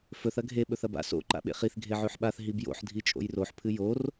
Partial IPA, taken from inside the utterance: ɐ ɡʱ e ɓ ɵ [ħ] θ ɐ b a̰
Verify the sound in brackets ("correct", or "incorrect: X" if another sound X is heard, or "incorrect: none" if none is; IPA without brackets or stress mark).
incorrect: none